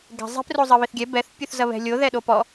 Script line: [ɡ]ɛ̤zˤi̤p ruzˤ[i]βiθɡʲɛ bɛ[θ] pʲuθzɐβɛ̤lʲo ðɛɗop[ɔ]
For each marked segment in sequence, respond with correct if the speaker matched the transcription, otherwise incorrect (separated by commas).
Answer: correct, incorrect, correct, correct